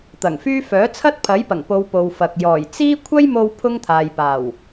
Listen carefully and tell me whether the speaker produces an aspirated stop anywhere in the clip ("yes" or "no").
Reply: yes